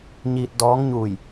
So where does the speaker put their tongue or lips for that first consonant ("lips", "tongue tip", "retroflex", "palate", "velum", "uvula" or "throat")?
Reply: palate